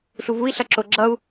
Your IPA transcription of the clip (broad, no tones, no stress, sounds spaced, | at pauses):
ɬ u v u i̯ ɬ ʌ ǁ o ɡ͡ǁ ʌ u̯